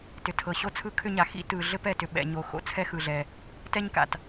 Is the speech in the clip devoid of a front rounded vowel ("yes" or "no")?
no